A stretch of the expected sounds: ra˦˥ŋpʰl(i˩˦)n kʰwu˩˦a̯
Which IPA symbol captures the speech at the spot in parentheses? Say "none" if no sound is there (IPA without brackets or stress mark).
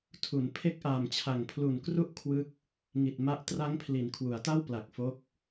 i˩˦